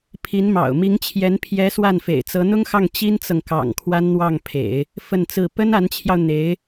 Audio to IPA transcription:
pʰ i˧˥ n m ɑ̰˨˩ ʊ̯ m i˧˥ ŋ t͡ɕʰ j ɛ˧˥ n pʰ j ɛ˧˥ s w a˥˩ n f ḛ˨˩ ɪ̯ t͡s ɤ˧˥ n̪ ʊ˥ ŋ x ɑ˥˩ ŋ t͡ɕ i˥ n t͡s ɤ˨ ŋ k ɑ̰˨˩ ŋ kʰ w a˥ n n̪ w ɑ˥˩ ŋ pʰ ḛ˨˩˦ ɪ̯ | f ə˥˧ n t͡s ɹ̩˥˩ p ə˥ n a˧˥ n t͡ɕʰ j ɑ˧ ʊ̯ n̪ e˧˥ ɪ̯

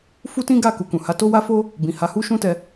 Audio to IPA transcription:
f u˦ t ĩ˦ ɡ a˦˨ k u˨ k ũ˨ h a˨˦ t o˦ w a˦ f o˦ | b ĩ˨ h a˨˦ h u˦ ʃ ũ˦ t ɛ˧

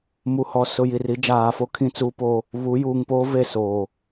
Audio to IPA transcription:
m u˨ h ɔ˨ s ʊ˨ j i˨ r i˨˦ d͡ʒ aː˨ f o˦ kʰ ĩ˦ t͡s uː˦ p o˦ | β u˨˦ j uː˨ ŋ p oː˦ v e˦˨ s o˨

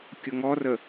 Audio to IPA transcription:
kʲ ʊ ŋ ɔ r ə

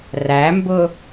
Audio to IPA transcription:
r æ m b ʊ

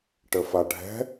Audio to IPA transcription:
ʈ ə f a ɖʱ ɛ̤

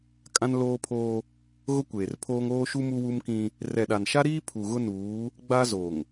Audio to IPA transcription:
kʼ ã˦ n l oː˦ pʰ oː˦ | ɣ ʊ˦ kʷ eː˨ r pʰ oː˦ ŋ oː˦ ʃ u˦ m u˦ w u˦ m k ĩ˦ | r ɛ˨ ɗ a˨ n ʃ a˦ ɾ iː˦ pʰ u˨ ɣ ʊ˦ n uː˨˦ | ɡ͡b a˦ z o˨ ŋ

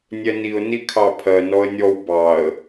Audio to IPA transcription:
nʲ ɛ n i ʊ̯ n i kʰ ɑ pʰ ɜ n ɔ ə̯ nʲ ɔ w b ɑ ə̯

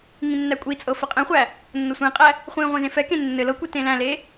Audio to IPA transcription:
ŋ ĩ nː æ kʷʼ i t͡sʼ ɤ f ɘ qʼ ɛ̃ χʷ æ | nː ɤ sʷ ẽ qʼ æ | χʷ ĩ ʁʷ ẽ z ẽ f ɛ k ẽ nː ɘ l ɤ kʷ i t ẽ l æ̃ l e

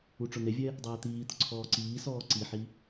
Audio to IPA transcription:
u ʈ͡ʂ ʊ n e vʲ ɛ | dˤ ɛː t̪ iː t̪ ʊ ǀʰ ɔː ǀ iː s ɔː ǀ i ħ i

